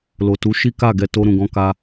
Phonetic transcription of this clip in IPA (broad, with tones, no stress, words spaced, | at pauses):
lo˨tu˨˦ʃi˦ka˦˨ ɡɛ˧to˧ ɾũ˨ɡɔ̃˧ka˧